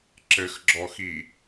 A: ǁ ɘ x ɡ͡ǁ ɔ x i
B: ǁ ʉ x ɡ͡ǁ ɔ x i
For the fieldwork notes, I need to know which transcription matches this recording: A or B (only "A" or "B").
A